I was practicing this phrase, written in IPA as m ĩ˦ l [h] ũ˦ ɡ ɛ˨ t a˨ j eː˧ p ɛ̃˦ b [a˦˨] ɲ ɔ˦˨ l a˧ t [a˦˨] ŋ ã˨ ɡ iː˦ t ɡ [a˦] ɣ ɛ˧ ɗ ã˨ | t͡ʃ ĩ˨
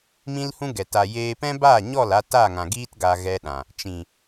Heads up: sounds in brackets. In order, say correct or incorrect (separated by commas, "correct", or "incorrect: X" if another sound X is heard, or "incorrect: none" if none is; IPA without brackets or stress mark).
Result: correct, correct, correct, incorrect: a˧